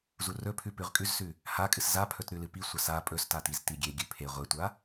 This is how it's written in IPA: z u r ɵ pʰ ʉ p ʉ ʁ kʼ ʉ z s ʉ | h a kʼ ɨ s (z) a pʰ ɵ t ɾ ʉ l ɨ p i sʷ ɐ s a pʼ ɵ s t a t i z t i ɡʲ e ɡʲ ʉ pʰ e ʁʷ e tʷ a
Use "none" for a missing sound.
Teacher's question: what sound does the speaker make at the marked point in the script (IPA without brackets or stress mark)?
z